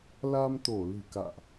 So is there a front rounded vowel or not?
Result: no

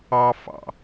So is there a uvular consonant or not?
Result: no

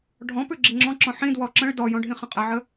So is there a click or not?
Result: yes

